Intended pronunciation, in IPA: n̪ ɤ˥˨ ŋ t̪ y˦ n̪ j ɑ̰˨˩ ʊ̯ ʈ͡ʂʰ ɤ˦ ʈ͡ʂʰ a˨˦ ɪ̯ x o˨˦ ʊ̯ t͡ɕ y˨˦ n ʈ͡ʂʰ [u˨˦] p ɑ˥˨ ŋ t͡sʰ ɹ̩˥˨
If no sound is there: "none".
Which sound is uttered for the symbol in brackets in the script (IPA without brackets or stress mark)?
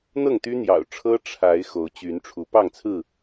u˨˦